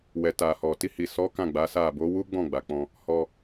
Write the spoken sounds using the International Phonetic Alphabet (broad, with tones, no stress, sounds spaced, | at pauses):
w ɛ˨ t a˨ h ɔ˨ t i˧ h i˨ s ɔ˨˦ k ã˦˨ ɡ͡b a˨˦ s a˦˨ b o˨˦ w u˦ ɡ͡b ɔ̃˦˨ ɡ͡b a˨ k͡p ɔ̃˧ | h ɔ˧